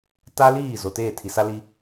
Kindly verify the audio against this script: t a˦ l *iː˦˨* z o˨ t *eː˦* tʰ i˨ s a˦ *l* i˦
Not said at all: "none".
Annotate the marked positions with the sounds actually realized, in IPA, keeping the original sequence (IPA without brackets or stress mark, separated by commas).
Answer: iː˦˨, eː˦˨, l